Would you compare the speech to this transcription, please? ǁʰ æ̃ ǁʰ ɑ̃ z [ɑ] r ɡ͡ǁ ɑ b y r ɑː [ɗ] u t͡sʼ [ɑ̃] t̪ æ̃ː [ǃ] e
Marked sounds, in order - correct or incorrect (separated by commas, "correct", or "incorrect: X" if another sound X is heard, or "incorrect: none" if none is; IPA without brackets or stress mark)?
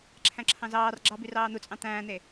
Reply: incorrect: ɑː, incorrect: n̪, correct, incorrect: n̪